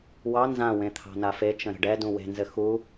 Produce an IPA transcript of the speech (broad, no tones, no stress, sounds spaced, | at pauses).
w ɑ n z ã w ẽ t̪ʰ ɑ̤ n a f e t͡ʃ ə̃ ɾ ə̤ ɖ ɛ d ũ w e̤ n z ɘ x u